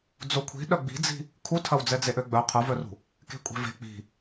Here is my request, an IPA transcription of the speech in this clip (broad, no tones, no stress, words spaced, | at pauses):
d͡zokʷʰi̤ɗœ ɡ͡bi̤d͡zi̤ | kʰutʰɐwd͡zɛd͡ze ʔøɡ͡bœ qʰʊvœrṳ | ke̤kʷʼe̤ve̤ k͡pi̤